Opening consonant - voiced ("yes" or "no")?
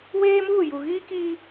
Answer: yes